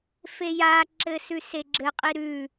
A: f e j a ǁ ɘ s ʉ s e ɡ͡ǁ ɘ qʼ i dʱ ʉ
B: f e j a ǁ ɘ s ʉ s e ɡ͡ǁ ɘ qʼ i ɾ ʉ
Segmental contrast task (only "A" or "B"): B